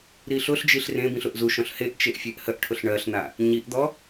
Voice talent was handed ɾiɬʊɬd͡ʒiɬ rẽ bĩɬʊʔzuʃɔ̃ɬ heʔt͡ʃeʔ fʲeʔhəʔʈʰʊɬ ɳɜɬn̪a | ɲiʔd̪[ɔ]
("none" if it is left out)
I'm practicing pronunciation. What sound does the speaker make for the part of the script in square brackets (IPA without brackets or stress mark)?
ɔ